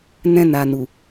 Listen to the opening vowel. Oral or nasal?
nasal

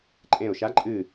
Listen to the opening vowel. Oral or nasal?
nasal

